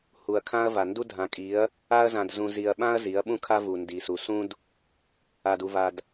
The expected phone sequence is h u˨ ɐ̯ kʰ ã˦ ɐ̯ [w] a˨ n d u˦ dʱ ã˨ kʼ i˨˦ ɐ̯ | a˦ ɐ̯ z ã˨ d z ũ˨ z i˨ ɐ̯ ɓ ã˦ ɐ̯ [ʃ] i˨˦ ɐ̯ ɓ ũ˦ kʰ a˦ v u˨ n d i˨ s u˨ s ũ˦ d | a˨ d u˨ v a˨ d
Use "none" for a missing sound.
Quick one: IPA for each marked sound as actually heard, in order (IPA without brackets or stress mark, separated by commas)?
v, z